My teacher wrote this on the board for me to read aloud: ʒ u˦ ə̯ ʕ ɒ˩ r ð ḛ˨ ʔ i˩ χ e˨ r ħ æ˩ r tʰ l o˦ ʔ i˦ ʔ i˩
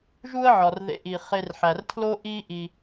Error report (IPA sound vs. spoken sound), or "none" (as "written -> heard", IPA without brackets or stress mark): none